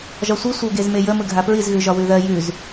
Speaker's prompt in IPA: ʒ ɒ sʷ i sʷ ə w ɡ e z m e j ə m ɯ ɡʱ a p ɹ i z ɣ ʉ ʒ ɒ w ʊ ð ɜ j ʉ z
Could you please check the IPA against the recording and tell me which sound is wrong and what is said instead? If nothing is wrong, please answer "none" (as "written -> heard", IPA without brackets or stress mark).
ʊ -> ʉ